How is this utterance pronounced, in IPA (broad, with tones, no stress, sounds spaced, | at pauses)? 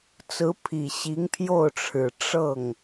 t͡s ɹ̩˧˥ pʰ i˨˩ ɕ i˧˥ ŋ pʰ j o˥˩ ʊ̯ ʈ͡ʂʰ ɻ̩˨˩ ʈ͡ʂ ɤ˥˩ ŋ